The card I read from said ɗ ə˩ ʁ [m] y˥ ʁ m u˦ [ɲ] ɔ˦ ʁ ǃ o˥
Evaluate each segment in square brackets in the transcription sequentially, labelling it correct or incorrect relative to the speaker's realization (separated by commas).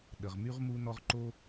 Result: correct, incorrect